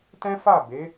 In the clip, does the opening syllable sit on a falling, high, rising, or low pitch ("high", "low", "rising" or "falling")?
high